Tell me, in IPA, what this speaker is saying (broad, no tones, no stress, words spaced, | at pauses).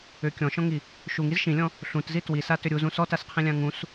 ʏ kʲɔ̃ʃɔ̃ŋi | ʃuŋiz ʃĩlʲɔ̃ | ɬũtzi twisatʏ ɾʲuzũ sɔtasqʰĩlʲã ŋũs